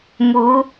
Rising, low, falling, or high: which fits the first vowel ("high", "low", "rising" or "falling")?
rising